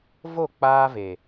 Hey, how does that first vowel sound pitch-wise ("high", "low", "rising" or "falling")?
falling